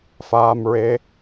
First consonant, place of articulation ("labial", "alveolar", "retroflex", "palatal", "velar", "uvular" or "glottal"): labial